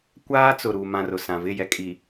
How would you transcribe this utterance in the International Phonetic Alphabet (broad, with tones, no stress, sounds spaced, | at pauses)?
kʷ aː˦ t͡s ʊ˨ ɾ u˨ m ã˨ r ʊ˨ s ã˨ v ɪ˦˨ j ɛ˦ kʼ i˨